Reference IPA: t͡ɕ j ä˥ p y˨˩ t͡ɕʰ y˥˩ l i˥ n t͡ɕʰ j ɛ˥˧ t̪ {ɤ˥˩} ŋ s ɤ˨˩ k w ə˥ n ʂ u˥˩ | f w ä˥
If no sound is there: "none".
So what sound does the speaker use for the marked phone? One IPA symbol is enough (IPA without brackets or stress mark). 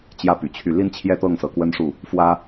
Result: ɤ˥˩